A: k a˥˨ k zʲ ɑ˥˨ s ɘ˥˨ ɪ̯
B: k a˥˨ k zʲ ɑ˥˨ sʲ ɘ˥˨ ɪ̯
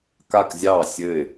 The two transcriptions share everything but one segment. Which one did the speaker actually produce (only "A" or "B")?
B